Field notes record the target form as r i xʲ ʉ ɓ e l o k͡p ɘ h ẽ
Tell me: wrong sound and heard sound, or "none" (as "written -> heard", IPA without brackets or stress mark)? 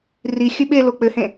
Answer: none